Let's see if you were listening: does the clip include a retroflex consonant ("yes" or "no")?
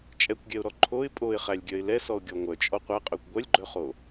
no